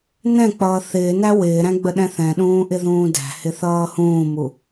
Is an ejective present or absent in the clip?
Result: absent